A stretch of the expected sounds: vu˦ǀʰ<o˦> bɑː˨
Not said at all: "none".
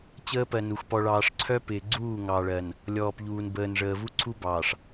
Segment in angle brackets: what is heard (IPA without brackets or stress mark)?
u˦